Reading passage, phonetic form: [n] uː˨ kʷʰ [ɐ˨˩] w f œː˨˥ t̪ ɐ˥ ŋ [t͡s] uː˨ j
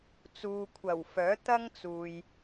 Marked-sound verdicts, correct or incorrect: incorrect, correct, correct

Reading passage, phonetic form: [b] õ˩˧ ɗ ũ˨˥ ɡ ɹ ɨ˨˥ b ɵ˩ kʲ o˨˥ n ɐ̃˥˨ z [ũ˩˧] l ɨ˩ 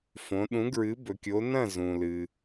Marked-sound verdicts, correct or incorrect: incorrect, incorrect

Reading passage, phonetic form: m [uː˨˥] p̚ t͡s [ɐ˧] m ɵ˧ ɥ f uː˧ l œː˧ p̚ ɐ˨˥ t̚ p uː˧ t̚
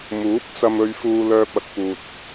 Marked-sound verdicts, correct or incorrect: correct, correct

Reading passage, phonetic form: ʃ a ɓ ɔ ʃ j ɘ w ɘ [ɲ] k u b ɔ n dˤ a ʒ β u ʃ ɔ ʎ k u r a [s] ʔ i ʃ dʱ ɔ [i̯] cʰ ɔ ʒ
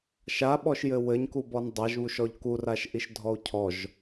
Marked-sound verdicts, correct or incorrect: correct, incorrect, incorrect

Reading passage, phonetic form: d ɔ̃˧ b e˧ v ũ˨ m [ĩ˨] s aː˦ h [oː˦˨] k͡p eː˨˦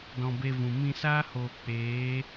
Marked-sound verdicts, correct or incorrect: incorrect, incorrect

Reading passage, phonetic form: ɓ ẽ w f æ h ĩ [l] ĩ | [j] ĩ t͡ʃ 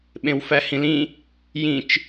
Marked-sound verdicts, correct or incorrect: correct, correct

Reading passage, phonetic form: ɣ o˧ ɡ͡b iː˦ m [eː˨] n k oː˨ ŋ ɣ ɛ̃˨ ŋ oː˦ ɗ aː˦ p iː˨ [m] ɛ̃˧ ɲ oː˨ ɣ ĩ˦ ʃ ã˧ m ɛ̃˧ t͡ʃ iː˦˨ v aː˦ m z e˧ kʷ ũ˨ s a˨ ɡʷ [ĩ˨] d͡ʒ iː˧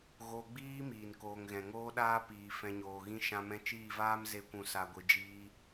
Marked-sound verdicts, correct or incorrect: incorrect, incorrect, incorrect

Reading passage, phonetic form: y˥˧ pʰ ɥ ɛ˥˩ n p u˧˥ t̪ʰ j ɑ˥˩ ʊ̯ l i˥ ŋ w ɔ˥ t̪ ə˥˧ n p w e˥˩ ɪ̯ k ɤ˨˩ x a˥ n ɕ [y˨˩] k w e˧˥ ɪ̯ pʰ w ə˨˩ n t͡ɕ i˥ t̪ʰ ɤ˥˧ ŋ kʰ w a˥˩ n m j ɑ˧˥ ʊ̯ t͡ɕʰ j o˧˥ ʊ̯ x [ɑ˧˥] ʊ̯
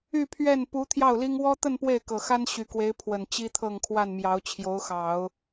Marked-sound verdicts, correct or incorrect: correct, incorrect

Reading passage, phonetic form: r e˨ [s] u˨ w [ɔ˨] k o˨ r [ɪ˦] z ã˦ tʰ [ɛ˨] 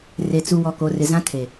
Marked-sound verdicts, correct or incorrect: incorrect, correct, incorrect, incorrect

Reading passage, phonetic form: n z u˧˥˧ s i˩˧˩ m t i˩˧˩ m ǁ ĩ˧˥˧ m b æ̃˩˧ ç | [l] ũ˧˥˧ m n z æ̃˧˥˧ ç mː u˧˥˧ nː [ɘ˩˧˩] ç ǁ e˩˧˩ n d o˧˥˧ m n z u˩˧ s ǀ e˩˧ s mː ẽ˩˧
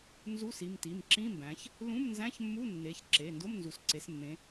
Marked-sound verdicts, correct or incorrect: correct, incorrect

